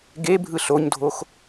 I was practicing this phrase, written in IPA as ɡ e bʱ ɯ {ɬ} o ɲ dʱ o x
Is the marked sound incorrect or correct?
correct